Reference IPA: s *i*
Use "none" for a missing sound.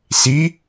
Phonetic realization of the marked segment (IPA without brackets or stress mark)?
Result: i